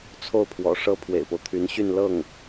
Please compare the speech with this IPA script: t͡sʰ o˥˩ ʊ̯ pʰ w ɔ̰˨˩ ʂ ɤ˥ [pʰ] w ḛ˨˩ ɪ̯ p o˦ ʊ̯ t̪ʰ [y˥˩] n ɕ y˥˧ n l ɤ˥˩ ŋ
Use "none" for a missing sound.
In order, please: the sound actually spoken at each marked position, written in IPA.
pʰ, y˧˥

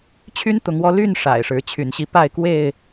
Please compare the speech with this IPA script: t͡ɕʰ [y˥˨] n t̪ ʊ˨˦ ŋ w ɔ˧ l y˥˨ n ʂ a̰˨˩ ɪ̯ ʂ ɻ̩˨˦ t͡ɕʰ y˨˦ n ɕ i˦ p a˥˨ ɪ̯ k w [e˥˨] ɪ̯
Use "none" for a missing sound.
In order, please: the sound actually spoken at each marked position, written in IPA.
y˦, e˥˨

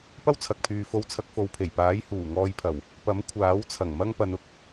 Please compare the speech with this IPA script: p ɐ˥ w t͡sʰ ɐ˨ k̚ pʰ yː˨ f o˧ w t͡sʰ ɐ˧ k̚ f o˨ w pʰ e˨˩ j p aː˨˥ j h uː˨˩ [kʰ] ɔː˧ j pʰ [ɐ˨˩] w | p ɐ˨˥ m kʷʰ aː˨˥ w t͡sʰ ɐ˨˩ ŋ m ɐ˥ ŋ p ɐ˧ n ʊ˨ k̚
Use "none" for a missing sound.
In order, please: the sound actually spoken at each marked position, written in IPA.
ŋ, ɐ˨˩

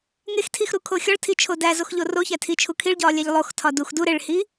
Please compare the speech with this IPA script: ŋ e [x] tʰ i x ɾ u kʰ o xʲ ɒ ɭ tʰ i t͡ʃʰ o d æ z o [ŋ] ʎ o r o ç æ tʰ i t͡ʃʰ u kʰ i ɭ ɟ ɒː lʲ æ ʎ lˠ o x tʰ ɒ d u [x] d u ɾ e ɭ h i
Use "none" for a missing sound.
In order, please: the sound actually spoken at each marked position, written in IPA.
x, x, x

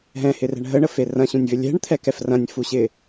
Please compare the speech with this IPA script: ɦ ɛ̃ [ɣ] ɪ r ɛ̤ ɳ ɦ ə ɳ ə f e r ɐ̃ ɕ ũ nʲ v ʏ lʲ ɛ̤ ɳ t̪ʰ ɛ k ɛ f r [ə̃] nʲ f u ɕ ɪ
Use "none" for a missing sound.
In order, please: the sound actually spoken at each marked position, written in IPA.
h, ɐ̃

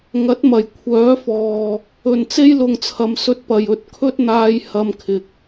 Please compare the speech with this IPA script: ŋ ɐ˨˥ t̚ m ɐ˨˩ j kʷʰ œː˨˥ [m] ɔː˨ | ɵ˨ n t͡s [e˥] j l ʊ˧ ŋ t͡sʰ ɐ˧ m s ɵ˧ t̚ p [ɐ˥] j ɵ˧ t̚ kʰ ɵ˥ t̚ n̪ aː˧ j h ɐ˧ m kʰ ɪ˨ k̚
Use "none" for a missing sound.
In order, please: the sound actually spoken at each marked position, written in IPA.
f, e˥, ɐ˨

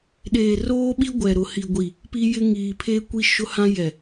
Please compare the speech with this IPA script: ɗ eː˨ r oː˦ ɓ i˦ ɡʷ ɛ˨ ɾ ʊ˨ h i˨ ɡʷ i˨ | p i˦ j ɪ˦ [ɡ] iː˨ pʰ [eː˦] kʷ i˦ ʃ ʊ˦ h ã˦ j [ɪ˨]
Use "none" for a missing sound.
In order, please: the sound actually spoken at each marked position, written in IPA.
ŋ, eː˦, ɛ˨

